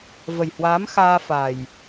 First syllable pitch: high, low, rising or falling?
low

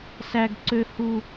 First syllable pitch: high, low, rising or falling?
high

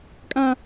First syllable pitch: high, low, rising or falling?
high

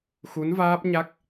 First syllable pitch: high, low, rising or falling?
rising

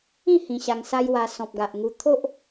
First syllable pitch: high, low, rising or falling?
falling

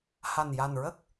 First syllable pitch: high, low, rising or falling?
low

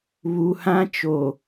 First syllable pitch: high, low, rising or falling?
low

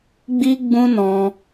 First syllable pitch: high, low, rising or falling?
high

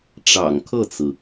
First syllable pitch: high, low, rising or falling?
low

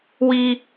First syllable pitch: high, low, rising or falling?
high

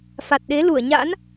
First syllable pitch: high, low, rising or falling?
low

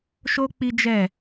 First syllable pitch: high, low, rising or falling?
high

